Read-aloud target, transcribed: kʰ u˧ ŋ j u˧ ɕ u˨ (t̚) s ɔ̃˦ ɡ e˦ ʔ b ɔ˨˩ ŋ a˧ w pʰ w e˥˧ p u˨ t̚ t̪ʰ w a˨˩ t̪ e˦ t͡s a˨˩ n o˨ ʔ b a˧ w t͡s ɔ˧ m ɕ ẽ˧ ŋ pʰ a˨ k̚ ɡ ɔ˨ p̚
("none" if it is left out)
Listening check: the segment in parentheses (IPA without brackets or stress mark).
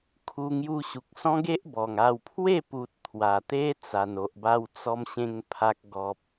k̚